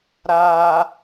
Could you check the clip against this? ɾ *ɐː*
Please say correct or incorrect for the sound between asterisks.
incorrect: aː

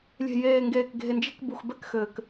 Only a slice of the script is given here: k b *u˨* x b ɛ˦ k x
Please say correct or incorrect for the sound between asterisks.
correct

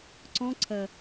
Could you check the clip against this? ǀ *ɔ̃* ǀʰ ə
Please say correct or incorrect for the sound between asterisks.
correct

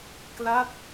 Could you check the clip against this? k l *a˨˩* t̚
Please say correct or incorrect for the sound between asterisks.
incorrect: a˥˩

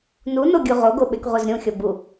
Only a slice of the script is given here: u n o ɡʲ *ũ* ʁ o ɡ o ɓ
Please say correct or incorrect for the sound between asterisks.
incorrect: u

